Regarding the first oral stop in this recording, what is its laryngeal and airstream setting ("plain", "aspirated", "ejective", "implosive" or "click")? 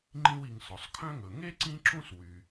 click